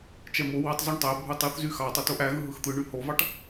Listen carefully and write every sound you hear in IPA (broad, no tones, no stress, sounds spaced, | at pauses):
t͡ʃ ɛ m o w ɑ tˤ z u ɳ tˤ æ bʱ u tˤ ɯ θ z y x ɑ tˤ o t o ʔ æ ɣ ɯ ɦ ɯ x t̪ ɯ ɳ y h o v ɑ ʈ